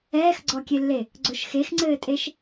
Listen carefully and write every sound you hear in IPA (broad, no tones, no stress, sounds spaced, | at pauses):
ɛː x ɡ͡ǀ ɔ kʲ e lː e | ɡ͡ǀ o ʃ x e x ŋ͡ǀ ɘː tʼ e ʃ